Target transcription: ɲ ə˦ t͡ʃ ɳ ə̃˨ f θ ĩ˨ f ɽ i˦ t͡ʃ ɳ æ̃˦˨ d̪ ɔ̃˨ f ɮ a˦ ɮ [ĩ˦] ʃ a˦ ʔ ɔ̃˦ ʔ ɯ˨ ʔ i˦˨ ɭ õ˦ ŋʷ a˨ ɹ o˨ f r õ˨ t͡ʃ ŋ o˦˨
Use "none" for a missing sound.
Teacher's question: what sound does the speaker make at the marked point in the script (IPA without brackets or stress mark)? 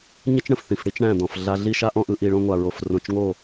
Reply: i˦